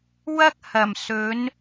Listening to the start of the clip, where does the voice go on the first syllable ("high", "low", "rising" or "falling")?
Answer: high